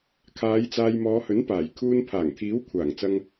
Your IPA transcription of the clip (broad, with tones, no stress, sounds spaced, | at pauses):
kʰ aː˨˧ j t͡s aː˨ j m ɔː˨˧ h ɵ˨˥ n p aː˨˩ j kʰ uː˧ n pʰ aː˨˩ ŋ t̪ʰ iː˨˥ w kʷʰ aː˨˩ ŋ t͡s ɐ˧ ŋ